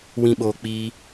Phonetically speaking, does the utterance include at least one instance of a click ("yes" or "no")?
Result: no